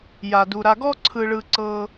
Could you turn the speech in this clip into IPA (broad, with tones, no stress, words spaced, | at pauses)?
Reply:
ja˩du˩ɾa˨ ɡɔ˥ǀʰɯ˨ɭɯ˨ ǀɤ˨